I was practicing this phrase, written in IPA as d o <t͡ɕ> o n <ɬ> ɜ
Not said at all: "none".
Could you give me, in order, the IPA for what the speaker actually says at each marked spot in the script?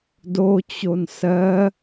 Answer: t͡ɕ, s

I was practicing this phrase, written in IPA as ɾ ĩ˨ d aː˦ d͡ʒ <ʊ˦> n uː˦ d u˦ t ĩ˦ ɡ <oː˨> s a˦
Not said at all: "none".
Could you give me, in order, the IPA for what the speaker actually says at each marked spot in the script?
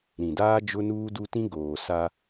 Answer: ʊ˦, oː˨

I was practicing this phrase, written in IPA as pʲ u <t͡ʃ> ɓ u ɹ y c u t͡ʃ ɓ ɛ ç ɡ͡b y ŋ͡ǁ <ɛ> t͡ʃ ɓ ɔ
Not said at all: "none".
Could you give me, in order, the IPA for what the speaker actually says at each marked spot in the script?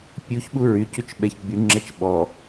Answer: ç, ɛ

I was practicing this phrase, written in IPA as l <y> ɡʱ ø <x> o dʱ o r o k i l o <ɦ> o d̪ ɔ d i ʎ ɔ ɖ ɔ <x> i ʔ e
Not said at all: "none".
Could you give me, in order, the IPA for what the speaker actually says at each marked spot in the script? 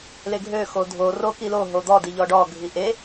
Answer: e, x, ɦ, ɡʱ

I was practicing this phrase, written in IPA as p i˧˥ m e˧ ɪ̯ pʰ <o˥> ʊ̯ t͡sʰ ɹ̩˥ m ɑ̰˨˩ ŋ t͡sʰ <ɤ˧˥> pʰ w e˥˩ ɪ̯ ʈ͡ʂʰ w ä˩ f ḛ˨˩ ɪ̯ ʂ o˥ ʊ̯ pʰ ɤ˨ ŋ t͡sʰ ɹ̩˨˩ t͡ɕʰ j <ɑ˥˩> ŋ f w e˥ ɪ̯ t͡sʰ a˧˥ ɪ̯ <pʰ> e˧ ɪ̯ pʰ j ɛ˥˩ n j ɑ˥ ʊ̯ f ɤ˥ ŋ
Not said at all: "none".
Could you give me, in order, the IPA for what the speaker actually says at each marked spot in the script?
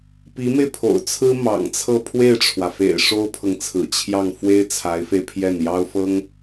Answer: o̰˨˩, ɤ˥˧, ɑ˥˩, f

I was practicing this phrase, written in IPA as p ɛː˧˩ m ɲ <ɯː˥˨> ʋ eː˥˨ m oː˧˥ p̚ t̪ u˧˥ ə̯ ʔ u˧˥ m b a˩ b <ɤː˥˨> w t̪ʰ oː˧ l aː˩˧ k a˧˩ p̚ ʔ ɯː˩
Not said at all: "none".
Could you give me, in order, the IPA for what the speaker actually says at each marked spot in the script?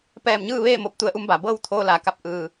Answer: ɯː˥˨, ɤː˥˨

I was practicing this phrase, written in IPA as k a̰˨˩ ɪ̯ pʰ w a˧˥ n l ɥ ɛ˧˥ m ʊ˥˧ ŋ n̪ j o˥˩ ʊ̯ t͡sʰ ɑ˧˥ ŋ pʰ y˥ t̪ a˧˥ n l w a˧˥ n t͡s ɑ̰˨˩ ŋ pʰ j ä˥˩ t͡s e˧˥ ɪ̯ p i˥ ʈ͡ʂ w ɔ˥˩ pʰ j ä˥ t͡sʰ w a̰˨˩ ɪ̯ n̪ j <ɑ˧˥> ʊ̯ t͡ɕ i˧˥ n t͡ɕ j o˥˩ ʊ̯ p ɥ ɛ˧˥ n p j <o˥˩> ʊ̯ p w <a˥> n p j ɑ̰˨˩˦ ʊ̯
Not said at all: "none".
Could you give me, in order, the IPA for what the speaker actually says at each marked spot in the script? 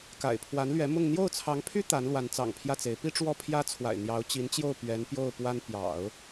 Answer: ɑ˧˥, o˥˩, a˥

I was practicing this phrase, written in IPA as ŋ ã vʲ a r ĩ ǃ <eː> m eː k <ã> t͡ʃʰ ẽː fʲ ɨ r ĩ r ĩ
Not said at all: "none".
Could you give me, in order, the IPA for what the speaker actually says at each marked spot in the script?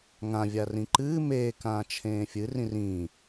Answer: ɨː, ãː

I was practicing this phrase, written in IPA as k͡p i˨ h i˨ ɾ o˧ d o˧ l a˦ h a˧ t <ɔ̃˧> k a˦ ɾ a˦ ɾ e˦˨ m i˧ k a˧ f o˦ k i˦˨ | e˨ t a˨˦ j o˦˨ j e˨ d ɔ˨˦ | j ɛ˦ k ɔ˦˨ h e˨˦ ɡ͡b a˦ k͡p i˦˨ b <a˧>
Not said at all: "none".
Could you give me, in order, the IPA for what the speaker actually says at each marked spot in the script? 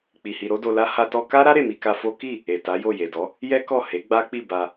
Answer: ɔ˧, a˧

